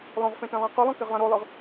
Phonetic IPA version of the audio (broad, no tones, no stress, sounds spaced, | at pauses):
lˠ õ ʁ f ẽ t ẽ lˠ æ̃ q y lˠ õ k e ʁ lˠ ẽ ɾ o lˠ ɯ ʁ